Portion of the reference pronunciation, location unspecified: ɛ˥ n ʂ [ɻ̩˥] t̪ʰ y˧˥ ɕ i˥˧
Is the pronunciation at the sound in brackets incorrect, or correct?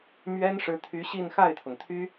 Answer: incorrect